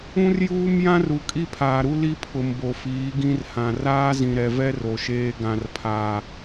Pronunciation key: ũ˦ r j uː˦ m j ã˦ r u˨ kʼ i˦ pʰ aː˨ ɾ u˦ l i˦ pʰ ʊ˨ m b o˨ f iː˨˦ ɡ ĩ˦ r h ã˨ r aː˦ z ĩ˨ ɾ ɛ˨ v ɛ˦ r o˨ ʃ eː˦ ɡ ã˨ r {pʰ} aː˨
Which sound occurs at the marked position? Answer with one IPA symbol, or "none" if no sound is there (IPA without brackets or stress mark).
pʰ